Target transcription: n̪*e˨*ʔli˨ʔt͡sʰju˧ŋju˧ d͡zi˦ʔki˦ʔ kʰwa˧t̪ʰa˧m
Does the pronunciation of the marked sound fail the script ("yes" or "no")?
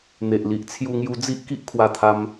no